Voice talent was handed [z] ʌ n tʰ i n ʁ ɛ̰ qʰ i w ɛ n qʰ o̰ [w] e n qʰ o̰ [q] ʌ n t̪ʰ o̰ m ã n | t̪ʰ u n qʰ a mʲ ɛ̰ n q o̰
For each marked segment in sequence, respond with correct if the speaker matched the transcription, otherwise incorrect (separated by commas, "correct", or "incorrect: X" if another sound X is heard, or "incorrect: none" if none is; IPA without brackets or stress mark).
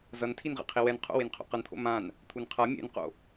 correct, correct, correct